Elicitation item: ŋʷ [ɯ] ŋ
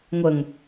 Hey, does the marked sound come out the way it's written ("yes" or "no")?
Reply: no